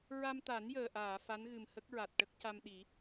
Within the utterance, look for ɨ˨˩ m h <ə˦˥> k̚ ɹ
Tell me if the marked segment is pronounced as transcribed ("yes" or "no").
yes